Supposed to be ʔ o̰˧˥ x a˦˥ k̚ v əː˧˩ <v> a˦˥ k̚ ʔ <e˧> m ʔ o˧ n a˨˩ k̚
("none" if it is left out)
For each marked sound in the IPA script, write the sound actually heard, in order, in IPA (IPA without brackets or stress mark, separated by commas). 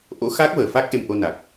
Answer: f, e˧